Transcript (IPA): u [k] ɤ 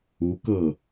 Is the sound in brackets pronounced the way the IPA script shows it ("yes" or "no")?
yes